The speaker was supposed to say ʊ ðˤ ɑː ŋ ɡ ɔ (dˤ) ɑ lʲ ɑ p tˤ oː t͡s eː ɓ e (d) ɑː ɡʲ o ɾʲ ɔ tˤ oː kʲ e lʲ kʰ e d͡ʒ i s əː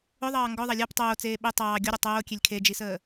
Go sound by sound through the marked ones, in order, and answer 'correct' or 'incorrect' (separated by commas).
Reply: incorrect, incorrect